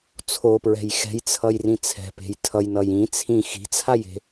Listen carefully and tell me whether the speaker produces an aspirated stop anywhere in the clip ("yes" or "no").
yes